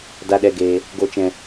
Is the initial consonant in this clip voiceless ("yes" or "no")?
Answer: no